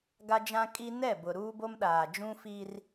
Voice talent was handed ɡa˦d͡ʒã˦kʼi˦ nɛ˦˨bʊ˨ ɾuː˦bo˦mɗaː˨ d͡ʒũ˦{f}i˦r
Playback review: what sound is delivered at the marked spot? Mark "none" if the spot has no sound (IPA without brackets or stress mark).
f